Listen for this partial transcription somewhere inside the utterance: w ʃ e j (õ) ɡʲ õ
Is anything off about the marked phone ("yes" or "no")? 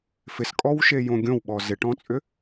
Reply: no